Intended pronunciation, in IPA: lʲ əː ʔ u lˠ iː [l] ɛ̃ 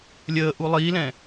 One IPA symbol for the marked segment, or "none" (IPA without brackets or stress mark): l